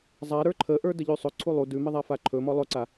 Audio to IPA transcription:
zˤ a ɾ ə˞ ǃʰ ə ʔ ə˞ d ə ʎ ʉ sˤ ɵ ǀʰ u lˠ u d ʉ m ə ðˤ a f a ǃʰ ɵ m ɔ lˠ ɵ ǀ a

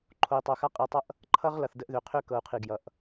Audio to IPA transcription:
ǃʰ o˨ i̯ tˤ o˨ x a˦ qʼ i˨ tˤ ʌ˦ ʔ | ǃʰ ʌ˦ ʁ l ʌ˨ θ d ə˦ ʔ ð ø˨ qʰ ø˦ k ɤ˨ u̯ qʰ i˨ ɡ j ʌ˨ ʔ

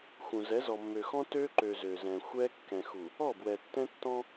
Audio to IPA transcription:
x ũ˨ z ɛ˨˦ z ɔ˨ mː ø˨ x ɔ̃˦ t ø˦ ǃ ø˨ z ø˨ z ɛ̃˨ xʷ ɛ˦ kː ɛ̃˨ x u˨ | ɔ˦˨ b w ɛ˨ tː ɛ̃˦ tː ɔ̃˦

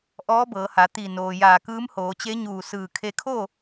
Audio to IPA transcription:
ʔ ɔː˧˥ b ɤː˩˧ h a˩˧ t̪ i˧˩ n oː˩ j aː˧˩ k ɯː˧˥ m h oː˩˧ t͡ɕ e˧˥ ɲ uː˧˩ s ɯː˧˩ kʰ e˧ kʰ oː˥˨

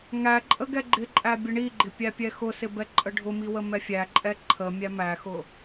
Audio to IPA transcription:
ŋ æ ǃʼ ə ɡ ɛ ɡ͡ǃ ɪ ǃʼ æ bʲ ə ɳ i ɡ͡ǃ ɪ pʲ æ pʲ ɛ x ʊ s ɪ b ɛ ǃʼ ə ɖʱ ʊ m i w ə m ɛ fʲ æ ǃʼ ɛ ǃʰ ə mʲ æ m æ x ʊ

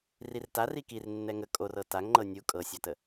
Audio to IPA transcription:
r i r t a r i k i r nː ɛ ŋ ə kʼ o r ɤ t a ŋ ŋ͡ǃ ɤ nʲ u kʼ ɤ sʲ a t ə

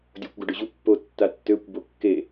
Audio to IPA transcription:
dʲ o kʷ ɡ o ɖ ʊ ʑ u pː o tː a tː ø kʷ b o kː e

